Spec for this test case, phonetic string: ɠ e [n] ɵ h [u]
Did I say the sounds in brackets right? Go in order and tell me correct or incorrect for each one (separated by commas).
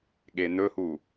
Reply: correct, correct